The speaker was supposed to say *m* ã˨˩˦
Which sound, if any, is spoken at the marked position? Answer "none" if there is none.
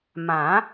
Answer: m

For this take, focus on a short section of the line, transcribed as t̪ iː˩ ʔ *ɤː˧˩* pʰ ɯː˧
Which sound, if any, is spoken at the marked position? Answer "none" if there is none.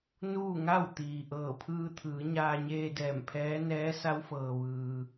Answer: ɤː˧˩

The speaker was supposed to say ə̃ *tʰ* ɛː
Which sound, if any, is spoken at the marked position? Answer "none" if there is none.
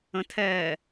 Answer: tʰ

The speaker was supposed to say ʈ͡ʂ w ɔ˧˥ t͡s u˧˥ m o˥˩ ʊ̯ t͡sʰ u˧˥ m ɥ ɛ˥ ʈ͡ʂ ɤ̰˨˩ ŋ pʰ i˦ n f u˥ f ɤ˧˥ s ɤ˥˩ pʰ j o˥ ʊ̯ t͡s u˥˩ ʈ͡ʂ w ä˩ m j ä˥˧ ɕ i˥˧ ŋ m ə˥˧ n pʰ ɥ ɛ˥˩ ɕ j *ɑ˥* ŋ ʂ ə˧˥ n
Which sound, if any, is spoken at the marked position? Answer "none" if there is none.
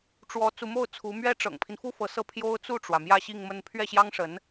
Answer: ɑ˥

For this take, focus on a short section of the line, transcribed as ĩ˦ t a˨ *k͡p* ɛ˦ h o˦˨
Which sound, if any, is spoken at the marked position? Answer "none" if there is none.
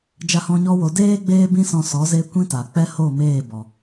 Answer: k͡p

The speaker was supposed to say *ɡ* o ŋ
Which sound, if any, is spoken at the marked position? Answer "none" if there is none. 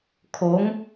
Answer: kʰ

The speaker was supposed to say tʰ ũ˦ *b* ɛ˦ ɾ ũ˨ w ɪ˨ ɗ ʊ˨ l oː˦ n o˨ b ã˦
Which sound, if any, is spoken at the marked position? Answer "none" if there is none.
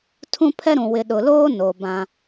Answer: pʰ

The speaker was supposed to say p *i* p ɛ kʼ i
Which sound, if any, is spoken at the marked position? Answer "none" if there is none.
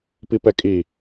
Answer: i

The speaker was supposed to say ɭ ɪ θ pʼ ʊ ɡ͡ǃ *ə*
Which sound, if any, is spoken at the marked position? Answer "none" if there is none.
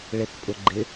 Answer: ɪ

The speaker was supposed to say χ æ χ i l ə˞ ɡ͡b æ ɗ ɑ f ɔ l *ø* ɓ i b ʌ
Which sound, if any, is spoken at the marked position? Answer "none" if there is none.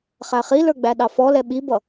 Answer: ɛ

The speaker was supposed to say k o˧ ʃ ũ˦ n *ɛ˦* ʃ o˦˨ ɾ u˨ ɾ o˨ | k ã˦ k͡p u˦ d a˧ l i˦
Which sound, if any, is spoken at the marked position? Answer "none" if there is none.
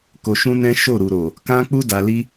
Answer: ɛ̃˦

